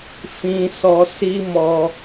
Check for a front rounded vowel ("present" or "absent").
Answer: absent